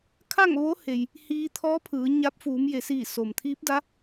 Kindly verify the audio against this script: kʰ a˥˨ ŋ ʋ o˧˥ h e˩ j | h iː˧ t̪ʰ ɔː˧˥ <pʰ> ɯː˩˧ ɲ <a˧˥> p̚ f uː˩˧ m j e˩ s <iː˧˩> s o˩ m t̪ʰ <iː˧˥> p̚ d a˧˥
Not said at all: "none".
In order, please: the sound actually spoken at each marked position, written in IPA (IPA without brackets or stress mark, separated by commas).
pʰ, a˧˥, iː˧˩, iː˧˥